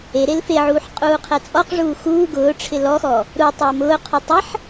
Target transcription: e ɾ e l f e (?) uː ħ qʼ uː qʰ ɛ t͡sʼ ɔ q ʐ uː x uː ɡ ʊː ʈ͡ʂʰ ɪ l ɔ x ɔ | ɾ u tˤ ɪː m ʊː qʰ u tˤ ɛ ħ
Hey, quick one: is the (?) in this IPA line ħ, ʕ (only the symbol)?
ʕ